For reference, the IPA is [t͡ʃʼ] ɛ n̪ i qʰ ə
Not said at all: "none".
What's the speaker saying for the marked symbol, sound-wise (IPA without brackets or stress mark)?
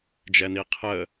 d͡ʒ